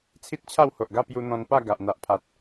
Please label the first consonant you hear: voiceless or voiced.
voiceless